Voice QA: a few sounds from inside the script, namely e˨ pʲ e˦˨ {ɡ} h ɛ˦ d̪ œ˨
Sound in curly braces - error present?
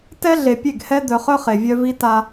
no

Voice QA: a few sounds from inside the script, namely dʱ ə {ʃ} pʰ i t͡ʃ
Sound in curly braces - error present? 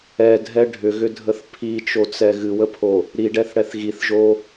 yes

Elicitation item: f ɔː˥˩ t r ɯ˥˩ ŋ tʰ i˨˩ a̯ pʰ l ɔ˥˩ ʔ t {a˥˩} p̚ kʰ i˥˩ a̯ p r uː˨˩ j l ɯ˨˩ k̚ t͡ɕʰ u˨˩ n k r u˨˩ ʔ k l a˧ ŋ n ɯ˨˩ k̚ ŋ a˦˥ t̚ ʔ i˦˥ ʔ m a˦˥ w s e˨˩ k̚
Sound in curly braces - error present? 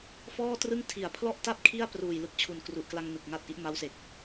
no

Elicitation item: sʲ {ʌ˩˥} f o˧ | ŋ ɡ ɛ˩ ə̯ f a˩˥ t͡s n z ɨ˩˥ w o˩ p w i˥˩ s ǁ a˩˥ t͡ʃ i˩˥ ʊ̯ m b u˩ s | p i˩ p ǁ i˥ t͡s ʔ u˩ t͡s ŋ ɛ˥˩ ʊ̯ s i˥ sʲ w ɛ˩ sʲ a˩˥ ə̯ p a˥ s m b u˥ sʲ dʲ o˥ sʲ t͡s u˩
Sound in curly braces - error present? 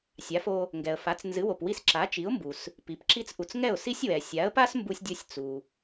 yes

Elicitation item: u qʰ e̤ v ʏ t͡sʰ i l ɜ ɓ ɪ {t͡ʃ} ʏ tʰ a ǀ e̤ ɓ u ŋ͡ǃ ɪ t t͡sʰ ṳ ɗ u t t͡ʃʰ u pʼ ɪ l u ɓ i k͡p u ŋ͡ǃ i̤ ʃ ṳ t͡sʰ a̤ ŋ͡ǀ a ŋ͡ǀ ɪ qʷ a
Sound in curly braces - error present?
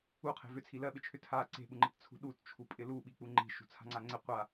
yes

